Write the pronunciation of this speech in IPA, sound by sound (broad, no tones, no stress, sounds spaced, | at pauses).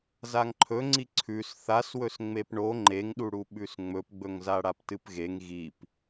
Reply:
z a ŋ ǃʰ ɵ ŋ͡ǀ i ǀʰ ʉ s θ a s w ɵ s ŋ͡m e p ɳ o ŋ͡ǃ e ŋ ɗ u ɽ u ɓ ʉ s ŋ͡m ɵ p ɡ͡b ɵ ŋ z a ɽ a p t ɨ p ɣ e ŋ ɣ i p